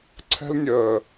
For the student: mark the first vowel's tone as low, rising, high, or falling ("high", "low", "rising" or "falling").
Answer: high